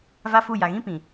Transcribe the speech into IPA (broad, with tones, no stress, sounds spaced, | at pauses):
v a˦ f u˦˨ j a˨ ɣ ĩ˦ p ĩ˨